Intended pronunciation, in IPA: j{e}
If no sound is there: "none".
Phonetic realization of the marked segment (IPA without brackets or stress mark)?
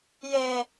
e